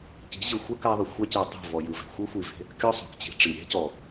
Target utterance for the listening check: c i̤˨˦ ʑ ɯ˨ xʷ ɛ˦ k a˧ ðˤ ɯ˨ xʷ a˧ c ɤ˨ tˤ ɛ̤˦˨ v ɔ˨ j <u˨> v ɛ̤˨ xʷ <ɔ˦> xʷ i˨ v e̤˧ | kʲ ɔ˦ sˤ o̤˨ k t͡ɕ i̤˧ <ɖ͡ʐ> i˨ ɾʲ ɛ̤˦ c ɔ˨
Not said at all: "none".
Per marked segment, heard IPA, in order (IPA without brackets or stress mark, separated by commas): ɯ˨, ɤ˦, ʈ͡ʂ